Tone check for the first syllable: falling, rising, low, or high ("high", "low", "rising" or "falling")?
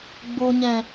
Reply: low